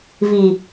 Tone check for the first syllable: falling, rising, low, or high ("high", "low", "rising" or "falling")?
low